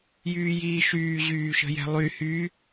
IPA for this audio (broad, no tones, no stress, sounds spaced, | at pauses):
j yː j iː ʃ yː ʑ yː ʃ ə̤ j ɛ̤ lˠ y h y